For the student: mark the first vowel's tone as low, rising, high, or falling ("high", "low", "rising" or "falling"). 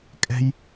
high